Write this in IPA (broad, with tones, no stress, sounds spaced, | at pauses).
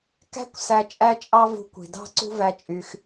k æ̤˧ kʷ s æ˧ t͡ʃʼ æ˦ t͡ʃʼ ɑ˦ v ṳ˧ kʷ i̤˨ d ɑ̤˦ ǀ ṳ˦ v æ˧ t͡ʃʼ y˧ x